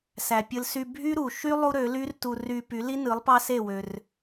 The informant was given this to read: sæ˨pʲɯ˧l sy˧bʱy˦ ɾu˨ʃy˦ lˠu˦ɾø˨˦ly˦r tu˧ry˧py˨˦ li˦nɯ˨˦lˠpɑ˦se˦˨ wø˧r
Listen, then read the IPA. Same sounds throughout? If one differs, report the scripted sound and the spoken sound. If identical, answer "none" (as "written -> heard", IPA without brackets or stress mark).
none